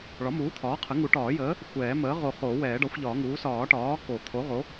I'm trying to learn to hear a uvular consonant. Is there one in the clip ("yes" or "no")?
yes